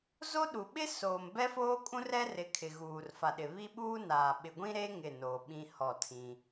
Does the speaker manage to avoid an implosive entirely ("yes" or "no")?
no